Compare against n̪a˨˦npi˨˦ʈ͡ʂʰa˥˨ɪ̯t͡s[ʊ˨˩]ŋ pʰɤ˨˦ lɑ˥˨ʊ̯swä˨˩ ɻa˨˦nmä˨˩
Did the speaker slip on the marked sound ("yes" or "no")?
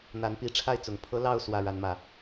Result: no